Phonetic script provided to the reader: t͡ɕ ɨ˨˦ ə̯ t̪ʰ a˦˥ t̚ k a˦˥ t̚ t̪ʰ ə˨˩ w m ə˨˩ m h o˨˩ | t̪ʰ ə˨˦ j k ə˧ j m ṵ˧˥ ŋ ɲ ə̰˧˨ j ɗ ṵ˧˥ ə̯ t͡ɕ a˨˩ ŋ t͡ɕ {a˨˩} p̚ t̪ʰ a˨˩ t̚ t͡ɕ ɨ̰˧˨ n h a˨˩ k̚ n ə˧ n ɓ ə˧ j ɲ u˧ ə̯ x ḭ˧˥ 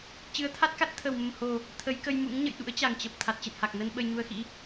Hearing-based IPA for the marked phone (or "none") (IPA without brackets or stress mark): ə˨˩